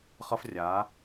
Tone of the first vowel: high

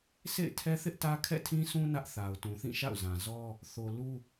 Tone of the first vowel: falling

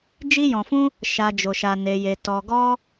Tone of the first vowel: high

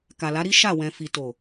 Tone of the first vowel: low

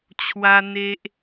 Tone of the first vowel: high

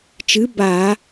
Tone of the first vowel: rising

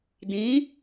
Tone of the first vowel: rising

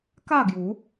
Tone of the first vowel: falling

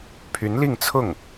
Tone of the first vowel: rising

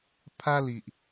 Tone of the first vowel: high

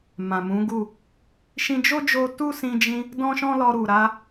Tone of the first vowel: low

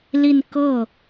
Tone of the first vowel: falling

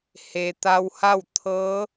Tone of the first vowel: low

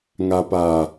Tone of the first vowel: low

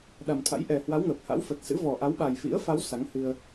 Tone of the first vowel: low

